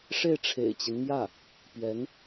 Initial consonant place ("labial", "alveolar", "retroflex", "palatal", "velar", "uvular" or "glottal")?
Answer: retroflex